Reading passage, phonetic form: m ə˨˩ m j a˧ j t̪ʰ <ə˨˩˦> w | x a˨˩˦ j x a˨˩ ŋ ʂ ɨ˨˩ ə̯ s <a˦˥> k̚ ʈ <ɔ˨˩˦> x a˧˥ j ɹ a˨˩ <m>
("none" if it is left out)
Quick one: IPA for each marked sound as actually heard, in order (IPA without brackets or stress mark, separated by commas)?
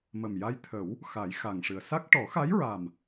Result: ə˨˩˦, a˦˥, ɔ˨˩˦, m